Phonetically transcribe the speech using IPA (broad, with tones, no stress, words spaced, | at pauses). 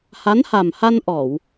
ha˧˥nha˨˩mha˧n ʔɔ˨˩˨w